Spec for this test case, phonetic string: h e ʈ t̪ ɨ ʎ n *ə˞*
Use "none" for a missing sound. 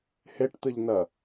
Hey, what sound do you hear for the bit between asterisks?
ɐ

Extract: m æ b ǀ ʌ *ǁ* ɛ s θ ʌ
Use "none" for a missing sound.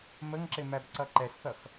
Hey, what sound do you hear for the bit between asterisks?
ǃ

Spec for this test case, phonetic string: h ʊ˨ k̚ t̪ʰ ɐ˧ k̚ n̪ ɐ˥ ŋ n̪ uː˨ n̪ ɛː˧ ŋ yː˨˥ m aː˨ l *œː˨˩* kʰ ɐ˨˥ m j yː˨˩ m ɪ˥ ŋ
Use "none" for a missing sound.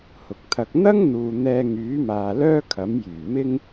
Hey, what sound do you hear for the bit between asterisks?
œː˥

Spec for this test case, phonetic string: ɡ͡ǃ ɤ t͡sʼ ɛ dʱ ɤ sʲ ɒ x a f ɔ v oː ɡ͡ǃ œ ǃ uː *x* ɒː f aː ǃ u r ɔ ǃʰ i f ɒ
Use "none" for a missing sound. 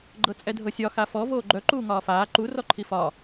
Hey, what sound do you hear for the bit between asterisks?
ŋ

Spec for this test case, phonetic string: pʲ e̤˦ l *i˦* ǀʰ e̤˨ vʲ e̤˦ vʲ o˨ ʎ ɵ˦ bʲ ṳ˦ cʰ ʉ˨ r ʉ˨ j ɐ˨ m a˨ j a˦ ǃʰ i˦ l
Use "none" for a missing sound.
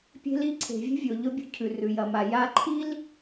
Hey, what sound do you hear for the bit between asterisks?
i˦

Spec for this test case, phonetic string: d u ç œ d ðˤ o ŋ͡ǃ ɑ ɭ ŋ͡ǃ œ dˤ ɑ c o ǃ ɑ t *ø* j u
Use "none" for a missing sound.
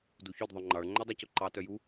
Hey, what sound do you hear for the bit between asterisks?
œ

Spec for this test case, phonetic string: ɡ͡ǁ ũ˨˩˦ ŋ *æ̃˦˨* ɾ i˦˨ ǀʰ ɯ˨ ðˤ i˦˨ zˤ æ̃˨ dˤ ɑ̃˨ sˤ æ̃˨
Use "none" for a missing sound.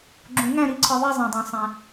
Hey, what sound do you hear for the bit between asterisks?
æ̃˦˨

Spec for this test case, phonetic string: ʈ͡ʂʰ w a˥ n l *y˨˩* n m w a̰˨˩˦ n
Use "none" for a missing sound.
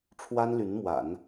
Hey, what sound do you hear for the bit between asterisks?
y˧˥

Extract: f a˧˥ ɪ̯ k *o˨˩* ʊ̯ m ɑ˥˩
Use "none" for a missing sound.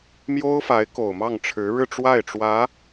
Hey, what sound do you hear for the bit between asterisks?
o˨˩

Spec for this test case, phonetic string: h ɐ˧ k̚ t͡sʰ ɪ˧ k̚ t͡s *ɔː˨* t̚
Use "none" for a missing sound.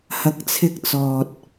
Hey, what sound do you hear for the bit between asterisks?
ɔː˨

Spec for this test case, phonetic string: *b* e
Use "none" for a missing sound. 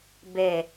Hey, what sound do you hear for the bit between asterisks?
b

